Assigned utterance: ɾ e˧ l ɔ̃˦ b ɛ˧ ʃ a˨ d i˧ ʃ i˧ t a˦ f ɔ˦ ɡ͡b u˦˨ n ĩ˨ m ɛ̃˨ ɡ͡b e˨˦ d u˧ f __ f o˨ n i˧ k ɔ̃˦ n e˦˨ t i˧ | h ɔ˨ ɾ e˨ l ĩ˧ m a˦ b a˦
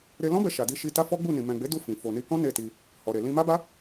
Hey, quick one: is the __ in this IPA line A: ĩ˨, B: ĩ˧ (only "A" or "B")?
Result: A